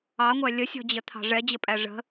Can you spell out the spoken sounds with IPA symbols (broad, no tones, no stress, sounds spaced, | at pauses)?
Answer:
ɑ ŋʷ æ lʲ ə sʲ ɔ̤ d͡ʑ ə t̪ʰ ɑ̤ ʐ ɛ d͡ʑ ə pʼ æ ʐ ə̤